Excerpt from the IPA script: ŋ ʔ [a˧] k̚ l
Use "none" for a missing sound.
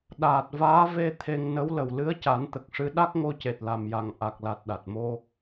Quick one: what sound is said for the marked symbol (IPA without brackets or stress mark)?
a˨˩